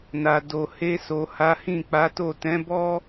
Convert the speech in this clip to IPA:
n a˨ d o˨ h e˧ s o˨ h a˨˦ h ĩ˦˨ k͡p a˨˦ t o˦˨ t ɛ̃˨˦ b ɔ˦

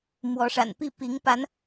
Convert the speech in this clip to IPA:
m w ɔ˨˦ ʂ a̰˨˩ n p i˥˨ p i˨˦ ŋ p a˨˦ n

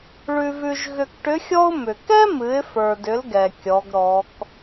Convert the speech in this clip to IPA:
ɭ ʉ˧ v ʉ˧ ʒ ɣ ʏ˧ k ʈ ʏ˧˥ xʲ ɔ˥ ʊ̯ m ʏ˩ k ɛ˥ m ɨ˩˧ ɪ̯ f ə˞˩ d ʏ˩˧ l ɡ ɛ˩ kʲ ɔ˩˧ ɡ ɾ ɔ˩˧ k

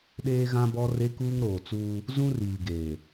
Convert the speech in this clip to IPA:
ɗ eː˦ ɣ ã˦ b ɔ˦ r e˦ k uː˦ ŋ ɾ oː˨ t͡s uː˦ | z ũ˦ r iː˨ ɡ eː˨

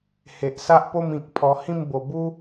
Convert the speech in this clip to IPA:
h e˨ ʔ s a˦ ʔ p o˥˧ m ĩ˨ k̚ pʰ ɔ˧ h ĩ˥˧ m b o˧ b u˦

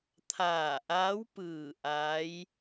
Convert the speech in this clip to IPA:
t̪ʰ aː˧˩ ʔ a˧˥ w p ɯː˧˩ ʔ a˧˥ j

